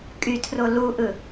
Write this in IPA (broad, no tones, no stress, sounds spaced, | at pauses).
kʼ y tʰ r o l u ʔ ɯ